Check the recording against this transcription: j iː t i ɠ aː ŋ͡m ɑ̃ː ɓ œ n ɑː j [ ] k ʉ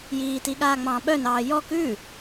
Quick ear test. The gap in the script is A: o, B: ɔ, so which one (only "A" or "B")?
B